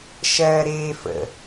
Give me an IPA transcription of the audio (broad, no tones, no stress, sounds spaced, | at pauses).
ʃ ɜː ɾ eː f ə̰